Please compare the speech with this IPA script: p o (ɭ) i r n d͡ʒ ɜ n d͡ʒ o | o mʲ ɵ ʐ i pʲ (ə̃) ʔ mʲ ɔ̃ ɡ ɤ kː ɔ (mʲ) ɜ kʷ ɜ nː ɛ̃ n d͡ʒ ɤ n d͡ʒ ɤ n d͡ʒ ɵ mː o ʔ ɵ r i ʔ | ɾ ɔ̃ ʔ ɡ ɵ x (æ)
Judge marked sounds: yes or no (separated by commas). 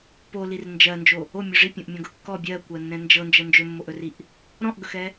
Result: no, no, no, no